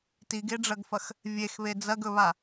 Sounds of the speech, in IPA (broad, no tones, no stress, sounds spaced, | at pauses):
t i ɡ e ɖ͡ʐ ɐ ɡ f ɐ x | vʲ e x β e d͡z ɐ ɡ ɵ β a